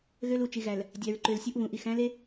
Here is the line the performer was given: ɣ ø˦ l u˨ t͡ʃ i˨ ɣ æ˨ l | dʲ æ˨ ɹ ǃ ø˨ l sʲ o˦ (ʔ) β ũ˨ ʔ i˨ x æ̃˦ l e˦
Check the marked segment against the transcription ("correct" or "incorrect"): correct